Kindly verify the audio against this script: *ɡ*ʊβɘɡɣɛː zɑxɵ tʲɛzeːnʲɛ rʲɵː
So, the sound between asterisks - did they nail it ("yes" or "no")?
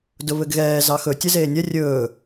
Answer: no